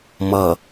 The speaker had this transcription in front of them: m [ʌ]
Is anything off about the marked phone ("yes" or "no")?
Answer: no